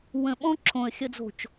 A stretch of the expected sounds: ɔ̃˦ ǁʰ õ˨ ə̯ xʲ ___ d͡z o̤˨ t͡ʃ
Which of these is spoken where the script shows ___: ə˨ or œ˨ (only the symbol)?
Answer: ə˨